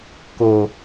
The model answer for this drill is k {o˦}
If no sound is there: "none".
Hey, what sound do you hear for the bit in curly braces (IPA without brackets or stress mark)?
o˨